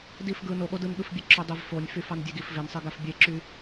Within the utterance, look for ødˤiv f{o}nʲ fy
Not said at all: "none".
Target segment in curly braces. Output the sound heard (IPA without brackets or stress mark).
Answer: o